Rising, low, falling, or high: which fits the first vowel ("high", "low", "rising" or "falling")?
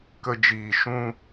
high